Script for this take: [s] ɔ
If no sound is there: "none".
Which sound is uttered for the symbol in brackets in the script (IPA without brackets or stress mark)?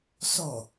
s